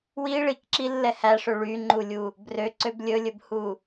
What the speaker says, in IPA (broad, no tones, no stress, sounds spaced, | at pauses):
w i ɭ i k ǁ i lː ɛ h æ ʂ ø ɭ y ŋ͡ǃ u lʲ u | b r ø ǀ ø b lʲ ɵ lʲ ɵ b h u